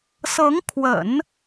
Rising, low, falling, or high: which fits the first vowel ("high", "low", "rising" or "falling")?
rising